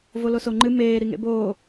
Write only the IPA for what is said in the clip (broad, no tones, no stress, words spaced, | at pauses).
volosoŋ͡ǃɨ meː ɾiŋḛboː